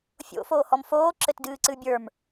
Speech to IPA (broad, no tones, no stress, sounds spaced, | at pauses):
fʲ o̰ f oː h ɔ m f oː ǁ ɘ t d ɨː ǀ ɨ bʲ ə˞ m